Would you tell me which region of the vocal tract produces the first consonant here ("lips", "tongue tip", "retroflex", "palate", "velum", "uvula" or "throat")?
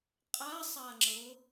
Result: uvula